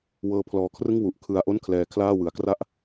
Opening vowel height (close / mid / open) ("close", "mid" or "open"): mid